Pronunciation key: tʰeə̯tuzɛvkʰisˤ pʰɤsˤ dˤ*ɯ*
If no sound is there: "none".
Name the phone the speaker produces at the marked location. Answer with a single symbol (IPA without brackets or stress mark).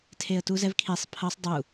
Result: u